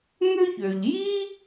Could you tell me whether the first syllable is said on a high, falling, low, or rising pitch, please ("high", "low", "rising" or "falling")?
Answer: high